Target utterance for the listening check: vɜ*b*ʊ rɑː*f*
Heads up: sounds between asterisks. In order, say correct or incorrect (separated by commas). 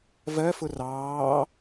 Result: incorrect, incorrect